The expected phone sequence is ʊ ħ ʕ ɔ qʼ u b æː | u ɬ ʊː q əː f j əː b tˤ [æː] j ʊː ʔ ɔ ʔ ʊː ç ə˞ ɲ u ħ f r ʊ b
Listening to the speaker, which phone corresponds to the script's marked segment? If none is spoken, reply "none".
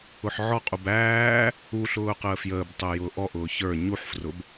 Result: əː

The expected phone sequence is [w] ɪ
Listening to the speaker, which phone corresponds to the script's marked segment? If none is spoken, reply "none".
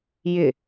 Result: j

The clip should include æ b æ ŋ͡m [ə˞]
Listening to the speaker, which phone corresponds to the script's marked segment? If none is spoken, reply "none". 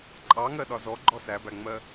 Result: ɜ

